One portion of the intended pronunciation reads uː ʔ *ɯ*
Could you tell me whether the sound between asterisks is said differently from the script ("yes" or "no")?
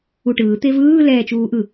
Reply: no